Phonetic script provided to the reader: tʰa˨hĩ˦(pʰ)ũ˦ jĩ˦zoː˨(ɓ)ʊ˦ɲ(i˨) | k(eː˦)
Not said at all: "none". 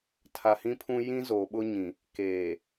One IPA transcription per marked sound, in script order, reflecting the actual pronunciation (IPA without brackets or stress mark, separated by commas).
pʰ, ɓ, ĩ˨, eː˨